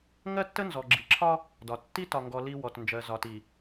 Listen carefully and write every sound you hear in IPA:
ŋ ɜ˦ tː ə˦ n z ɔ˨ ɡ͡ǁ i˨ ǁʰ ɒ˦ | d ɒ˨ tː i˦ t ɒ˨ ŋ ɡ ɔ˨ l i˦ w ɔ˨ t n d͡ʒ ɜ˨ z ɒ˨ t i˨

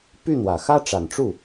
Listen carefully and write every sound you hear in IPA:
p y˥˩ n̪ w ä˨˩ x ä˥ ʈ͡ʂ a˨˩ n ʈ͡ʂ u˥˩

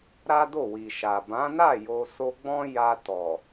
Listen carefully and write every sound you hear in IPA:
ɾ a˦ d o˦˨ w i˨ ʃ a˨ b ã˨˦ n a˦˨ j o˧ s o˧ ɡ͡b ɔ̃˦ j a˧ t ɔ˨

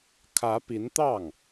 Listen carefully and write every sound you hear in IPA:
kʰ ä˧˥ p i˧˥ n t̪ ɑ˥˩ ŋ

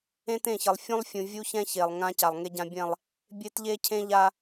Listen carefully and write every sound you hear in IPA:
ẽ˦ t ẽ˦˨ ç ʌ˨ lˠ fʲ ũ˦ lˠ fʲ ũ˨ vʲ u˦ ç ɛ̃˦ ç e˨ lˠ ŋ ã˦ c a˨ lˠ ŋ e˦ ɟ ã˦ bʲ ɛ̃˦˨ lˠ | bʲ e˦ t ʎ e˦ cʰ ẽ˦ ʎ a˦

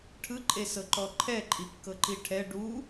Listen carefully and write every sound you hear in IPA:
ʈʰ ɯ ǃʼ e s ɤ ǃ ɔ ǃʰ ɛ ǃʼ i kː ɤ ǃ i ʈʰ ɛ ɖ u

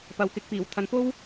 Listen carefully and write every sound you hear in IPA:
p ɐ˨ w k ɪ˧ k̚ p iː˨˩ w t̪ʰ ɐ˨˥ n f o˥ w

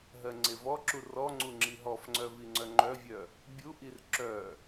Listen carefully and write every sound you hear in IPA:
ɦ ɜ ŋ͡ǀ e v ɔ ǁ u r ɔ ŋ͡ǀ u ŋ͡ǁ i ɦ ɔ f ŋ͡ǀ œ v i ŋ͡ǀ œ ŋ͡ǃ œ vʲ œ | bʲ u ʔ i r ǁ œ

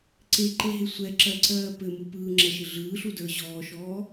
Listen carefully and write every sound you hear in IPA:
ǀ e ǃ e ɦ e sʷ ɛ ǁ ɜ ǀ ɜː p ɘ m u p ɯː ŋ͡ǁ ɛ ʃ ɘ ɮ ɯː ɬ u d ə˞ ʑ ɔː ʃ ɔː

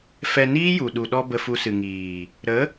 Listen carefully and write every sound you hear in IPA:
f ɛ˧ n iː˦ j u˨ ɗ u˨ ɗ ɔ˧ b ə˧ f u˧ s ɨ˨ ŋ iː˨ | ɾ ə˨˦

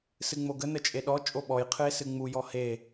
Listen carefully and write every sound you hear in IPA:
s ɨ ŋ͡m o ɡ ə n ə t͡ʃʼ e ɗ ɔ t͡ʃʼ o ɓ ɔ j qʰ ɨ e̯ s ɨ ŋ͡m u j ɔ h e

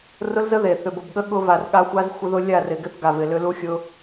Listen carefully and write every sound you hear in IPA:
r ʊ˦ l z ə˦ ð e˨ θ ʏ˨ b ʊ˨ b ɠ ə˦ ɠ ʊ˦ v a˨ r ɠ a˦ xʷ a˦ z xʷ ɪ˦ ð ʊ˦ lʲ a˦˨ r ɪ˨ ɡ ɪ˦ θ ɡ a˨ v ɪ˨ l ʏ˦ l u˦ xʲ ʊ˦

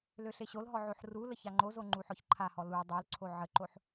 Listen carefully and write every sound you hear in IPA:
l ø ɬ e ɕ o l ɦ ɔ ʕ o ħ r u l ə ç a ŋ͡ǃ o z o ŋ͡ǃ u ħ ɔ ç ǃʰ a h ɔ l u dˤ o l ǀʰ o ʕ ə ǃ o ħ

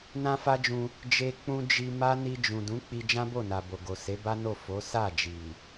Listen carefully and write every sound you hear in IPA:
n ã˦ f a˦ d͡ʒ ũ˧ | d͡ʒ e˧ k͡p ũ˧ d͡ʒ i˧ m a˦ n i˧ d͡ʒ ũ˨ d ũ˨˦ k͡p i˧ d͡ʒ ã˦ b o˦˨ n a˨ b o˨ ɡ o˨ s e˨˦ b a˦ n o˦˨ f o˨˦ s a˦˨ d͡ʒ i˨

